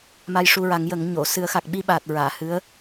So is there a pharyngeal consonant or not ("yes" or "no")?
no